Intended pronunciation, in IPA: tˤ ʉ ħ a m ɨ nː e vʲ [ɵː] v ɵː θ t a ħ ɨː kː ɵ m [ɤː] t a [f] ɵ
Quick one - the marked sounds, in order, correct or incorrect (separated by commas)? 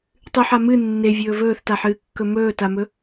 correct, incorrect, incorrect